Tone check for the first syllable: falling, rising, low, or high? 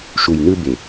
low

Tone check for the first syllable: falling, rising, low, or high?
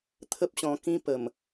high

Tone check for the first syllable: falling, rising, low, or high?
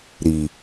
low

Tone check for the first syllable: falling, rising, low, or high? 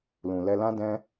low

